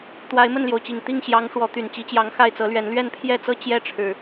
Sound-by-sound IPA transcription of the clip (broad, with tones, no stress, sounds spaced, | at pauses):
t̪ w a˨˦ ɪ̯ m ə˥˨ n l j o˩ ʊ̯ t͡ɕ i˨˩ ŋ t̪ i˥˨ ŋ ɕ j ɑ˨˦ ŋ ʂ w ɔ˨˦ t̪ y˨˩ n t͡ɕ i˨˦ t͡ɕ j ɑ˨˦ ŋ x a˥˨ ɪ̯ t͡s ɤ˨˦ l ɥ ɛ˨˦ n l ɥ ɛ˥˨ n pʰ j ɛ˥˨ t͡s ɤ˦ t͡ɕ j ɛ˦ ʈ͡ʂʰ ɻ̩˨˩